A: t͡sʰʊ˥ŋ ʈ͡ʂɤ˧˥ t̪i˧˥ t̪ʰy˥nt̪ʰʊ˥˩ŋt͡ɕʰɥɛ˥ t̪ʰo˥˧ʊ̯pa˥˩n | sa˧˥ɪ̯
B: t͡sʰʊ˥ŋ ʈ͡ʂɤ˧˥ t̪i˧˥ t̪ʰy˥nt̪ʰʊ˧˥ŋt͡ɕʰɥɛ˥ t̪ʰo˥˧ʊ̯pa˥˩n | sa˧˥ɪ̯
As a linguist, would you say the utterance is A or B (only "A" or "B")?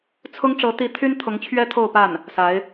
B